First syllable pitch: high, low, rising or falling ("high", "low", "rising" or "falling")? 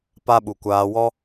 high